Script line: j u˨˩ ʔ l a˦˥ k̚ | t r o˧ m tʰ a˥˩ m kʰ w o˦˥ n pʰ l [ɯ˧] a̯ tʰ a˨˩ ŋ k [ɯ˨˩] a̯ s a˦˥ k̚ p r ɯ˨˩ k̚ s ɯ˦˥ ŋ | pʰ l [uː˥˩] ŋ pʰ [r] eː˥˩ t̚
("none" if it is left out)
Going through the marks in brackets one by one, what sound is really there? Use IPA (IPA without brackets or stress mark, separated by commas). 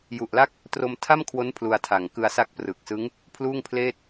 u˧, ɯ˧, uː˥˩, l